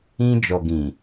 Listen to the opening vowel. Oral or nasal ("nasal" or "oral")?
nasal